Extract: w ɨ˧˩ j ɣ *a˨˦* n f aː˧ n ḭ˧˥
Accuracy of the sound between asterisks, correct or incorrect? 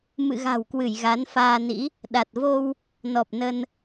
correct